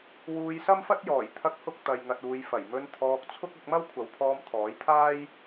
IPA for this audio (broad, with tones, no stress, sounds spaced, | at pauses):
w uː˧ j s ɐ˥ m f ɐ˥ t̚ j ɔː˨˩ j t̪ʰ ɐ˧ k̚ h ʊ˧ k̚ t̪ ɐ˨ j ŋ ɐ˨ t̚ uː˨ j f ɐ˨˩ j m ɵ˧ n t̪ʰ ɔː˧ k̚ t͡sʰ ʊ˥ k̚ ɐ˧ k̚ m ɐ˥ w kʷʰ ɐ˨˥ w pʰ ɔː˧ m t̪ʰ ɔː˨˥ j t̪ʰ aː˥ j